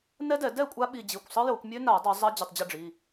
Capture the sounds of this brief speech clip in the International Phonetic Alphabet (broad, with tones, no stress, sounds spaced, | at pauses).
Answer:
n ɛ˦˥ d ɛ˧˩˧ d ɛ˥˨ kʷʼ a˦˥ ɓ i˧ d͡ʑ i˩˧˩ kʷ sˤ ɯ˦˥ j o˧˩˧ kʷ mʲ ø˦˥ n a˧˩˧ dˤ ø˧˩˧ zˤ a˦˥ d͡ʑ ə˩˧˩ tˤ d͡ʑ ə˥˨ ɖ͡ʐ i˩˧˩